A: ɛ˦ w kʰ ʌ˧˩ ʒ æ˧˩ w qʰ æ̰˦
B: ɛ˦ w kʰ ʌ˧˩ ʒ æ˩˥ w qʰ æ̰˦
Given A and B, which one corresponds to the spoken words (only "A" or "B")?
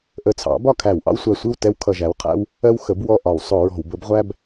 B